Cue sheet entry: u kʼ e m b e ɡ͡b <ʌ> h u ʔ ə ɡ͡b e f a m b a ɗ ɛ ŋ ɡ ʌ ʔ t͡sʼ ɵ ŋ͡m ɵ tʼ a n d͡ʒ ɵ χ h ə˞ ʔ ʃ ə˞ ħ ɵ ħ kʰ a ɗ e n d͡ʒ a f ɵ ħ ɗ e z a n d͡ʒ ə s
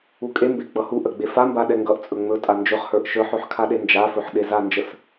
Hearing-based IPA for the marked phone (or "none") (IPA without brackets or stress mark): ʌ